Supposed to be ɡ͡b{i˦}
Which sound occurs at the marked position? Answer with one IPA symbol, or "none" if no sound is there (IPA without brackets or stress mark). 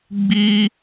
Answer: i˦